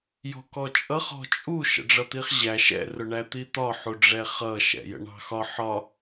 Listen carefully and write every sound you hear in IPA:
j ɔ̤ k ɔ t͡ʃʼ ʌ χ ɔ̤ t͡ʃʼ u ʃ ə̰ ɖ͡ʐ ʌ t̪ i χ ʑ æ ʃ ɛ̰ r ʊ ɳ æ t̪ i t̪ ɒ ħ u ɖ͡ʐ ɛ χ ʌ ʃ ɛ̰ j ə̰ ɳ ɑ̤ x ɒ ħ ɒ

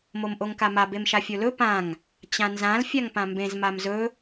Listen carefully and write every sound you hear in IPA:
m o m ʔ o ŋ k a m a b e m ʃ a fʲ o l ɵ p ã ŋ | t͡ɕ ã n z ã l fʲ a ŋ p ã m b ẽ z m a m z ɵ

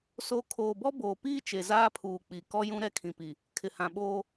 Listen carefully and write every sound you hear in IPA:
s o˨ kʰ oː˨ b ɔ˦ b oː˨ p iː˦ t͡ʃ e˨ z aː˦ pʰ uː˨ k͡p i˨ k ɔ˦ j ũ˦ ɾ ɛ˦ kʰ ĩ˨ p i˨ | kʰ ɪ˨ h ã˨ ɓ oː˦

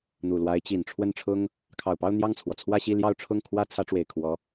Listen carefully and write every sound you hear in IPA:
n̪ u˨˩ l w a˧˥ ɪ̯ t͡ɕ i˨˩ n ʈ͡ʂʰ w ə˥˩ n ʈ͡ʂʰ ʊ˥ ŋ | kʰ ɑ˨˩ ʊ̯ p ɑ˥˧ ʊ̯ n̪ j ɑ˥˩ ŋ t͡sʰ w ɔ˩ t͡sʰ w ä˥˧ ɕ i˥˧ l j ɑ˥˧ ʊ̯ ʈ͡ʂʰ ʊ˥˩ ŋ kʰ w ä˥ t͡sʰ ä˧˥ ʈ͡ʂ w e˨˩ ɪ̯ kʰ w ɔ˧˥

